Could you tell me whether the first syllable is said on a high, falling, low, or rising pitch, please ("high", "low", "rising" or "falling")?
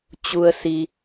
low